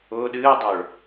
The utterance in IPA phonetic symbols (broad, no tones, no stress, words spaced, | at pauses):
ʊː ɗɨːdˤʊːɭ